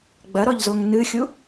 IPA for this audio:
ɡ͡bɐɾɔʎzoŋ nɨxʲu

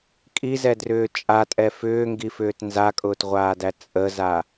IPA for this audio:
kʼizɛdrʏː t͡ʃʼatʼɛ fʏːŋɡifʏːt nzakʼʊːtʁʷaːdæ t͡sʼəza

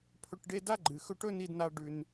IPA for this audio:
pʰɵ˦ʈɖe˥ da˥ɡ͡ǃɨ˩ xɵ˦ʈɵ˥ ni˦dna˦ ɖʉ˨n

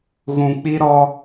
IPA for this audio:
ɣũ˨k͡pi˦ ɾɔ˦

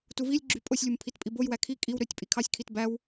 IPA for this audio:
tuvilʲɡ͡ǁy pʼosʲlʲum pʰitpʼibojwæ kʰi kʼiw ɾøtʲ pʼikʰɑsʲkʰit bæw

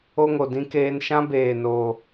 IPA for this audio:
o˦ŋo˨dĩ˦keː˦n ʃã˦beː˨ noː˦

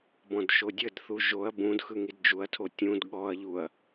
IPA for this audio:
bɔ̃dʃodʲədθu ʒoɐ̯ bũd xɯŋidd͡ʒuɐ̯tʰo tʲũd ɠɔɐ̯ʎuɐ̯

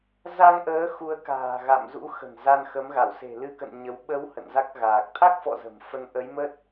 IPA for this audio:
za˧ŋʔəː˨˦ xu˨˦ə̯ka̤ː˨˩ ɣa̰˧˨mzṵ˧˥ xə̤˨˩nza˧nxə˨˦m ɣa˧˩wse̤˨˩lɨ˧kə̰˧˨n ɲə˨˦w ɓə˨˦w hə̰˧˨nza˦˥k̚ɣaː˨˩k̚ t̪ʰa˦˥k̚fɔ̰˧˨ zə̤˨˩mfə˧n ʔə˨˦jmə˦˥t̚

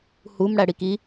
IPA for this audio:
hum ɽæɽiki

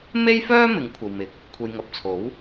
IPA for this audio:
me˥jfœː˥ mɪ˨˥ŋkʷʰɐ˨wmɪ˨k̚ | kʷʰe˨jŋɐ˨p̚t͡sʰo˨˥w

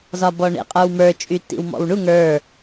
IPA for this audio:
zɒbɔɳḛ qʼə˞wmə˞ t͡ʃʼytːḭwmɔ̰wɳu ŋə˞

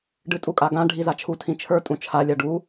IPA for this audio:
ɖɨtʼukʼaɡã ɖʱizat͡ʃʰu tʰĩt͡ʃʰə˞ tʼũt͡ʃʰa lʲaɖu

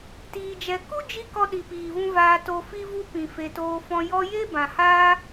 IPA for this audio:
tiː˧d͡ʒɛ˧ ku˦d͡ʒi˧ kɔ˧ɗi˨piː˨vũ˧ vaː˧ to˧fi˦ vu˧ pĩ˨ fe˧toː˧fɔ̃˦ jɔ˧je˦ bã˨haː˦

